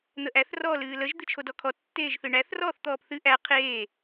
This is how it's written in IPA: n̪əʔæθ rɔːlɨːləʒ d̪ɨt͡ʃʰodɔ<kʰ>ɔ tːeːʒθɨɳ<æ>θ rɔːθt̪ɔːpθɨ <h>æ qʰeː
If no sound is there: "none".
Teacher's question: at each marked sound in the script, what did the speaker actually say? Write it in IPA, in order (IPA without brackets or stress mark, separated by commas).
kʰ, æ, ʔ